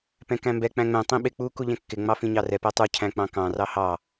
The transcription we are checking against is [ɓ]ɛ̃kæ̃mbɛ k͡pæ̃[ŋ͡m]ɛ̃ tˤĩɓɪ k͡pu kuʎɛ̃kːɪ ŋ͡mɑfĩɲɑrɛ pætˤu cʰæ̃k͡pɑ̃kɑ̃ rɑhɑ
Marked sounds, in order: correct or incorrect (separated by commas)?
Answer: incorrect, correct